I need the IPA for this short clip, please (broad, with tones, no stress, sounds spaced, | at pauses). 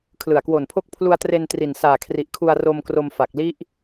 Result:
kʰ l ɯ˨˩ a̯ k w o˨˩ n pʰ o˦˥ k̚ pʰ l u˧ a̯ t r e˧ n t r i˨˩ n s aː˨˩ kʰ r i˨˩ ʔ kʰ u˧ a̯ r o˧ m k r o˧ m f a˨˩ k̚ l i˦˥ ʔ